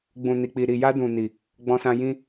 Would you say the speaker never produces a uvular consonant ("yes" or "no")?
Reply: yes